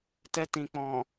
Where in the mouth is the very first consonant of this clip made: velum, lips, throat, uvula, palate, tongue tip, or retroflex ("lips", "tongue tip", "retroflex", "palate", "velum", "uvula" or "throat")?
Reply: tongue tip